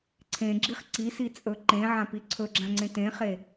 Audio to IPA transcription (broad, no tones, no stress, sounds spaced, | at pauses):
ǀʰ ẽ ɡ͡ǁ i χ ǀ i s i t͡sʼ ɵ ǃ ẽ ʕ ã p i ǀʰ ɵ ɡ͡ǁ ã ŋ͡ǀ ẽ t ẽ χ e